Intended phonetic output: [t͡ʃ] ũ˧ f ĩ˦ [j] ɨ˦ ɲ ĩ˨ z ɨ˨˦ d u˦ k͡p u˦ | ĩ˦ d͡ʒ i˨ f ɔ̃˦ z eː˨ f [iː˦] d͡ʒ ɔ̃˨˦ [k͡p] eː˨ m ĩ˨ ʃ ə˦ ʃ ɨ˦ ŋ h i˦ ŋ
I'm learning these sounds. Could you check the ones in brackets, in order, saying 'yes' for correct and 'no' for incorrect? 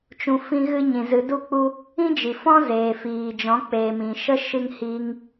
yes, no, no, yes

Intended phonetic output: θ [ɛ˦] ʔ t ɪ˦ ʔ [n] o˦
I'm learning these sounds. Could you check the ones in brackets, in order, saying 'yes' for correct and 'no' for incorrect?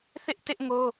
no, no

